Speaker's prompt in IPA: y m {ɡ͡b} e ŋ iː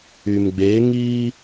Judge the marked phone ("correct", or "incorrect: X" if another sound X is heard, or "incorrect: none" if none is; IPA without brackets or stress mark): correct